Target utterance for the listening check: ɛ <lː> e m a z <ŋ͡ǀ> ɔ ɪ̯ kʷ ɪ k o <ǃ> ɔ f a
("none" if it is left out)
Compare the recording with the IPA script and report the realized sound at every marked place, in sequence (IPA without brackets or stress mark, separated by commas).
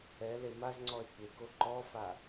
l, ŋ͡ǀ, ǃ